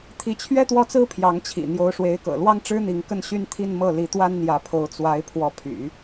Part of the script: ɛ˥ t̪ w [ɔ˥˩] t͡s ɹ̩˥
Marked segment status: correct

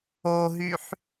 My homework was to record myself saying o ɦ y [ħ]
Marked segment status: correct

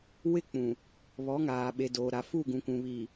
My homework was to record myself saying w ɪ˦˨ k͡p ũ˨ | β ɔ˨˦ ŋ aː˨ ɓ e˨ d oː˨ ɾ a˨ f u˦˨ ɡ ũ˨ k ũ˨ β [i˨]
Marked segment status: incorrect: iː˨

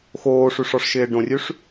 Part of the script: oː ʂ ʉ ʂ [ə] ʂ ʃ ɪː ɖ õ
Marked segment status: incorrect: ɔ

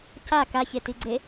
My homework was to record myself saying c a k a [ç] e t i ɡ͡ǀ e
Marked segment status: correct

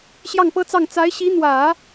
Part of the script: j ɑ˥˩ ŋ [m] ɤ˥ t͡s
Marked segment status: incorrect: p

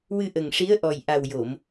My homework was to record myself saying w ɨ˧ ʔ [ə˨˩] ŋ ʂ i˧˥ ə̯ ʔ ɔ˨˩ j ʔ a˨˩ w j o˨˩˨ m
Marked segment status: correct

